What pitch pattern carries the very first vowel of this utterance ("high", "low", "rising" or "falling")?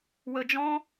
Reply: low